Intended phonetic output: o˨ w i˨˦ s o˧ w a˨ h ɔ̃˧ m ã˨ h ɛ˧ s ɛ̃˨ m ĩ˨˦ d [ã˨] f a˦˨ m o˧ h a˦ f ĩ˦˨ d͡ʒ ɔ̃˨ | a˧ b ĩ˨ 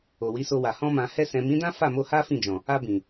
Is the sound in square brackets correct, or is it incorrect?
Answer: incorrect